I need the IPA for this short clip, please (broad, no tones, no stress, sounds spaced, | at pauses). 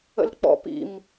ə̰ l k͡p ɔ̰ p ḭ m